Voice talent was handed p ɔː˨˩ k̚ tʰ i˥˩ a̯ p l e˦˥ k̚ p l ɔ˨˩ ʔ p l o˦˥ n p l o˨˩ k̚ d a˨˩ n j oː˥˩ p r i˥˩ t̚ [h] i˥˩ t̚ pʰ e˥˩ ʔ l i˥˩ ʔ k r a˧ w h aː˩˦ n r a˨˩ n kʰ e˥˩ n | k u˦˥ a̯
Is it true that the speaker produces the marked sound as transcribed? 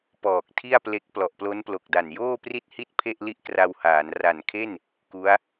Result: yes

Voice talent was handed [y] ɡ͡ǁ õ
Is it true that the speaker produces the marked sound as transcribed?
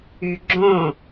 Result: yes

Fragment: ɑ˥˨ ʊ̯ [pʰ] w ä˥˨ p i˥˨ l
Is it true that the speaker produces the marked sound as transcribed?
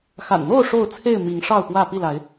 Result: no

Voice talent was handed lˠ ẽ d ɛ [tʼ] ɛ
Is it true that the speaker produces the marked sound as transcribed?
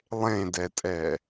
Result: yes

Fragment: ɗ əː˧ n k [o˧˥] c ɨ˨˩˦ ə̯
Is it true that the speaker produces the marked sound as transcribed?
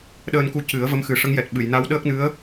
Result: no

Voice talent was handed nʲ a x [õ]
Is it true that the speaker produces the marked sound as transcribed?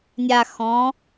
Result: no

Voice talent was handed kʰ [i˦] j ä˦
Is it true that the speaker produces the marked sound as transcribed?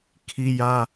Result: yes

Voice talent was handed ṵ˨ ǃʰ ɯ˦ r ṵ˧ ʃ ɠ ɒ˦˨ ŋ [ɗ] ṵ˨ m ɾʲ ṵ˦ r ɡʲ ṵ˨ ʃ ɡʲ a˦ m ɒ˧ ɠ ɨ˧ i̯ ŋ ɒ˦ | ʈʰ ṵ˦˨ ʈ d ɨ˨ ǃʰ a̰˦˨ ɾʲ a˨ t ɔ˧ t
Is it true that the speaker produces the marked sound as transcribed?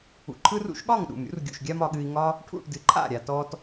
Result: yes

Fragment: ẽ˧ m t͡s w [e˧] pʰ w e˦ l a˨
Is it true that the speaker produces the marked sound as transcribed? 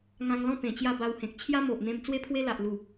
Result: no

